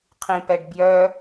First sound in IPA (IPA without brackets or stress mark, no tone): qʰ